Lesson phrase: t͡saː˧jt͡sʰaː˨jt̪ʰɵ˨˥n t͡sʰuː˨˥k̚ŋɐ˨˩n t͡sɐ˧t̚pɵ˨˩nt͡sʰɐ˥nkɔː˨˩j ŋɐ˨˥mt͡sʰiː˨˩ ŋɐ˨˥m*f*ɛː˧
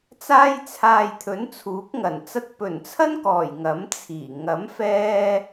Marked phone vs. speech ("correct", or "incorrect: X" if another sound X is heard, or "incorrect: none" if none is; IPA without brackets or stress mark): correct